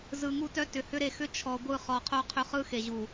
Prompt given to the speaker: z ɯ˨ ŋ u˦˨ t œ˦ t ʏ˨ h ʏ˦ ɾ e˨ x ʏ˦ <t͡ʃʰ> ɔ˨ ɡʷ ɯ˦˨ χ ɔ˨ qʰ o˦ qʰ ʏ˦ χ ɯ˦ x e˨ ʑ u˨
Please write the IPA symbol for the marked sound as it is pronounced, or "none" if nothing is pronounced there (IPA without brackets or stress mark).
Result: t͡ʃʰ